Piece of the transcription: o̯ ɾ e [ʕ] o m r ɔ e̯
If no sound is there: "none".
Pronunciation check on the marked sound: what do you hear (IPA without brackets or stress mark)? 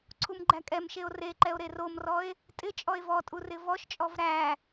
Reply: r